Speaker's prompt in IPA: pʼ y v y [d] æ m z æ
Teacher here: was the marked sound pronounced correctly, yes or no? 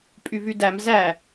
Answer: yes